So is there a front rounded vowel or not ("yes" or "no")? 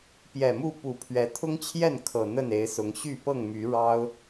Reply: yes